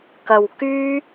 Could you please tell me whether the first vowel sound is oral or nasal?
oral